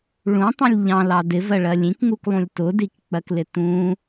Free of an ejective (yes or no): yes